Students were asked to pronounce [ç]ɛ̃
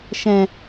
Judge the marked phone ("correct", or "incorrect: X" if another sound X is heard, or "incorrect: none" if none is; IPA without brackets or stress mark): incorrect: ʃ